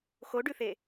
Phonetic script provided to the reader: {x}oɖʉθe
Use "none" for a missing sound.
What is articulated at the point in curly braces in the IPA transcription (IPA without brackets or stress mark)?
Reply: x